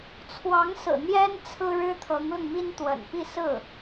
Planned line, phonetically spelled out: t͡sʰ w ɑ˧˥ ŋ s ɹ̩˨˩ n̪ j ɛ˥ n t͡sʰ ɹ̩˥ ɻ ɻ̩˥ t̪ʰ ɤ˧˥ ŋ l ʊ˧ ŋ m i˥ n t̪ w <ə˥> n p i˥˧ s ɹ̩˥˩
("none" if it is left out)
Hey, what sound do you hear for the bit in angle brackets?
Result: ə̰˨˩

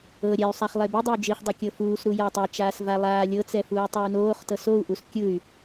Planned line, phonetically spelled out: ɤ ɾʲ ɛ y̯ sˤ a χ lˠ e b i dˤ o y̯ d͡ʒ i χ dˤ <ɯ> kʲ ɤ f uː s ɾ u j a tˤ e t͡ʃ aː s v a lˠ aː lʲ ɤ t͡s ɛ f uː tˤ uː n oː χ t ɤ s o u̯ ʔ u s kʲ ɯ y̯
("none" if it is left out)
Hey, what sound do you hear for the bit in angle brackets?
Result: ɤ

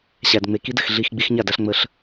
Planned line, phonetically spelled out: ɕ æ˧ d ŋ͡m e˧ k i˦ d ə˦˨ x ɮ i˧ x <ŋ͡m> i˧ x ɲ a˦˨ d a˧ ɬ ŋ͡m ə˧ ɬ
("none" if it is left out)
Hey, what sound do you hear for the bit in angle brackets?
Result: ɡ͡b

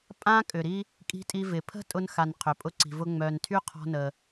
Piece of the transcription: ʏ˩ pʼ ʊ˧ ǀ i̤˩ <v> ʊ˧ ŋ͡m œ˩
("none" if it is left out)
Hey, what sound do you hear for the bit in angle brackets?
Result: v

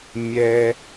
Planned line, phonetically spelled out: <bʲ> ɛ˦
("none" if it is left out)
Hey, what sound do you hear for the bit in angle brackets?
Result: mʲ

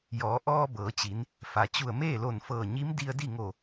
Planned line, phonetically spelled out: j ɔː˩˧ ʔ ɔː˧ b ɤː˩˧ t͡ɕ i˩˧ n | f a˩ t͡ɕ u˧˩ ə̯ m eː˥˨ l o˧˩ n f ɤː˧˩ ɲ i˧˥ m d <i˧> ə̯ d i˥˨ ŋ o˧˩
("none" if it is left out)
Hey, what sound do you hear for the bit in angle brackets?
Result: i˧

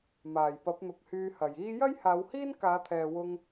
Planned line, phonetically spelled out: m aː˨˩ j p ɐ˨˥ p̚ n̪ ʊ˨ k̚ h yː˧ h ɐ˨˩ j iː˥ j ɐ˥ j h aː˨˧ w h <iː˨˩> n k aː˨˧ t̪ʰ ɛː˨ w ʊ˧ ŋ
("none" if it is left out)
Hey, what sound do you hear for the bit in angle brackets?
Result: iː˥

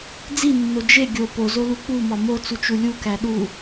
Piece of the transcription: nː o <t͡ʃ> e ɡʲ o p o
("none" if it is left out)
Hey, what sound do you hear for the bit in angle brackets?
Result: d͡ʒ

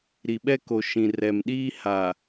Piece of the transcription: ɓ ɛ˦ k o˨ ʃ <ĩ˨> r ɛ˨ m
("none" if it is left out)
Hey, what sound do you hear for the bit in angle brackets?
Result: ĩ˨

